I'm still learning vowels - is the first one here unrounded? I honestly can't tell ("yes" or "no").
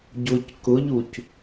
no